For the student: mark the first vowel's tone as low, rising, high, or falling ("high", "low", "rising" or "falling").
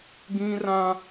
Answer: high